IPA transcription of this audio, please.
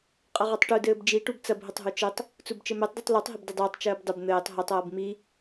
qʼ ɐ ʁ o tˤ ʈ u d ɘː b d͡ʒ i ʈ u b t͡s ɐ b ɦ ɘ tˤ ɦ u t͡ʃ ɘ tˤ | t͡s u b t͡ʃ ɘ m ɛ tˤ d i tˤ l o tˤ ɦ ɪ b d ɪ dˤ ɘː tˤ t͡ʃ ɘː b dˤ ʏ b n̪ ɘː tˤ ɦ ʏ tˤ ɐː b m i

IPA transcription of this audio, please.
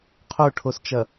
qʰ o ʈʰ o s t͡ʃ ɐ

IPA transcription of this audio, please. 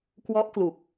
k w ɔ˦˥ ʔ k l u˨˩ k̚

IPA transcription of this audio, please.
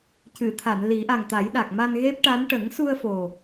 c ɨ˨˩˨ t̪ʰ a˨˩˨ n l i˨˩˦ ʔ a˨˩ ŋ t̪ a˨˩˦ j ɗ a˨˩ k̚ m a˧ n ɣ e˦˥ p̚ ʈ a˧˥ n ʈ ə˨˩˦ ŋ s u˧ ə̯ f o˨˩

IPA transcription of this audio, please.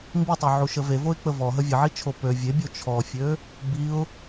m b i tˤ ø ʕ u ʃ ə v e v o ɪ̯ k͡p ə v ɔ ɦ ə vʲ ə ʕ i t͡ʃʰ o p ø vʲ e bʲ o t͡ʃʰ ɔ fʲ ø | b i ʊ̯

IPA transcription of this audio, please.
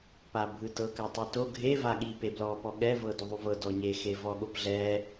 p a bʱ ɯ t ɤ k a tˤ e t o ɡʱ e v a ɠ i p e b l ɔ p ɔ ɠ ɛ v ɤ d o ðˤ u v ɤ d ɔ ɲ e x e v ɔ ɠ o p ɮ ɛ

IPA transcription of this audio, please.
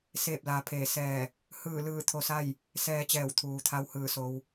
s eː˧˩ p̚ l aː˩˧ pʰ eː˧˩ s ɛː˧˩ | h ɯː˧˩ l ɯː˧˩ t̪ʰ o˧ s a˥˨ j | s ɛː˧ t͡ɕ ɛː˧˩ w t̪ʰ uː˩ t̪ʰ a˧ w h ɯː˧˩ s o˧ w

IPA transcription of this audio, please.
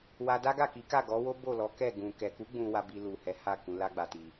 w a˧ d a˦ ɡ a˦˨ k i˨˦ k a˦˨ ɡ ɔ˨˦ w o˦ b o˦˨ l ɔ˨˦ k ɛ˦˨ ɡ ũ˨ k ɛ˨ k u˨˦ ɡ͡b ũ˧ w a˧ b i˧ l u˨ h ɛ˨˦ h a˦˨ k ũ˧ l a˦ ɡ͡b a˧ t i˧

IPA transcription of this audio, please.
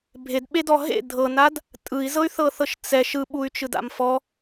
bʱ e d ɓ e d ɔ ɦ ḛ dʱ ɤ n a d | tʼ ɯ i̯ z ɤ y̯ θ ɤ θ ɤ ʃ t͡s ɛ ʃ ɯ ɓ u y̯ t͡ʃ ɯ d a̰ m f ɔ

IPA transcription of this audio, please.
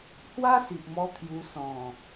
h w a˦ s i˨ ʔ m ɔ˧ t̪ʰ j u˧ s ɔ̃˨˩

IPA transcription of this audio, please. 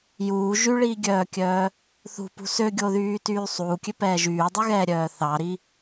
j uː ʒ y ɭ iː ɡʲ œː kʲ œː | θ ṳ p ṳ s ø ɡʲ o ð yː t yː sˤ uː kʲ ø p ɛː ʒ yː dˤ y ɣ ɛː ɾʲ œː θ ɑ ɾ i

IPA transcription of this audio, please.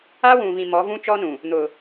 a˦ w ũ˨ v ĩ˨ m ɔ˨˦ v ũ˦ t͡ʃ ɔ˦ n ũ˨ | n̪ ʊ˨

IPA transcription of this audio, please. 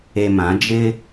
e˨ m ã˨˦ d͡ʒ ɪ˦

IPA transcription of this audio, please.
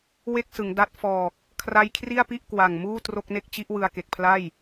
w e˥˩ k̚ s ɯ˩˦ ŋ d a˦˥ t̚ f ɔː˨˩ k̚ | kʰ r a˦˥ j kʰ r i˥˩ a̯ p i˥˩ ʔ k w a˨˩ ŋ m uː˥˩ t r o˥˩ k̚ n e˥˩ k̚ t͡ɕ i˦˥ ʔ w ɯ˧ a̯ k e˨˩ k̚ pʰ l a˥˩ j

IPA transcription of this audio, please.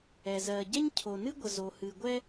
ɛ˩ z ɜ˩ ɟ ɛ˥ ɲ cʰ o˩ n ɨ˥ ɡʷ ə˩ z o˩ h ɨ˩ ɡʷ ɛ˥

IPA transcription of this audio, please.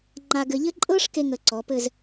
ŋ͡ǃ a˧ ɡ ɘ˧ ʎ ɘ˥ ǃʼ ɤ˥ ʂ k e˥ ŋ ə˧ ǀ ɔ˩˧ p ɘ˥˧ z

